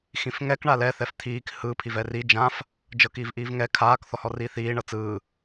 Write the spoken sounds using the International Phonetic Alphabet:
x ĩ f ŋ ɛ k ɳ a l ɛ θ ɛ f t̪ʰ iː k h ɯ pʰ i v ɛ r i d͡ʒ ã f | d͡ʒ ɤ k iː v ʔ iː v ŋ ɛ kʰ aː k θ ɔ h ɔ r iː θ iː ɳ ɤ t͡s ɯː

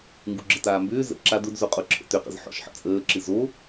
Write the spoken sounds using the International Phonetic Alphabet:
ŋ ɡ u ɡ͡ǁ ə t aː m b ʏː z ə̰ ǁ a d ʊ d z o qʼ ʊ ǁʰ ə̰ t ʏ q ə̰ z ħ ɔ̰ ʃ ħ ə̰ t͡sʼ əː ǁ ɨ z o

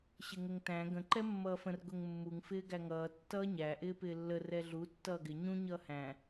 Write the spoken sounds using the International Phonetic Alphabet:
ɕ ɪ ŋ ə ŋ t æ̃ ɡ ə̃ ǃ ɛ mː ʌː f ə̃ r ɡ ʊ ŋ mː u ŋ f ɪː ɡ æ ŋ ʌː tː ʌː ɲ æ ʔ ɪː p ɪː lː ə r ɛ ɮ u tː ʌː ɡ ɪ ɲ ũ ɲ ʌː h æ̃

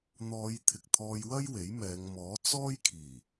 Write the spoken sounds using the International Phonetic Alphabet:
n̪ ɔː˨˧ j t̪ʰ ɪ˨ k̚ t̪ʰ ɔː˧ j w ɐ˥ j w e˨˥ j m ɛː˨˧ ŋ m ɔː˨˥ t͡s ɔː˥ j kʰ iː˨˩

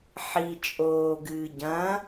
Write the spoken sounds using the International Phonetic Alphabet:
ħ i t͡ʃʼ oː ɡ ɨː ɟ ɐ̃

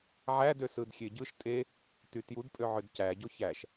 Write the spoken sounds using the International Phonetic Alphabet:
ʕ æ d ø s ɯ d xʲ e ɟ ɯ ʃ tʼ e | t y t j u d pʼ ø ʕ ø d c æ ɟ o ç æ ʃ

